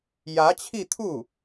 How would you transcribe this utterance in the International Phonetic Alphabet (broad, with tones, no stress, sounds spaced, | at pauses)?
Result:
j ä˧˥ t͡ɕʰ i˥˧ t̪ʰ u˥˩